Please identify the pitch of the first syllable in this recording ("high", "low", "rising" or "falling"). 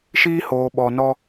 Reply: high